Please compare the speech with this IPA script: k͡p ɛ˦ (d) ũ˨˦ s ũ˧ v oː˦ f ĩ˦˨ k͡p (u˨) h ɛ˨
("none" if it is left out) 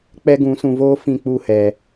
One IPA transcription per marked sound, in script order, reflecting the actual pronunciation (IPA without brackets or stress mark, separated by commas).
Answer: ɡ, u˦˨